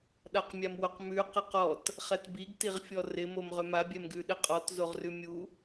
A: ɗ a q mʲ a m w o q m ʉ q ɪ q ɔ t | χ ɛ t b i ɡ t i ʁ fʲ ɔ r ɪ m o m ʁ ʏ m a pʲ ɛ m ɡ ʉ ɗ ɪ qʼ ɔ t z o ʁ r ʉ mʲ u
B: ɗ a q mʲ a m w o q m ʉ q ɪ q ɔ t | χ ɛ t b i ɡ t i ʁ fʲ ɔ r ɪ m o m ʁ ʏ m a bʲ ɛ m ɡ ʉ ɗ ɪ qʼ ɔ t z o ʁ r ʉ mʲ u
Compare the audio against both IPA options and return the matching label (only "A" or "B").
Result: B